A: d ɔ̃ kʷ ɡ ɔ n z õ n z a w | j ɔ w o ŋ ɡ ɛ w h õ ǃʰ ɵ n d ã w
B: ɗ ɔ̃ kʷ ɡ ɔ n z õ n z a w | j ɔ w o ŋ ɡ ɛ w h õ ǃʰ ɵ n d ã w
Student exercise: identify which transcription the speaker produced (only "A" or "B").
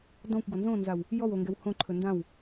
A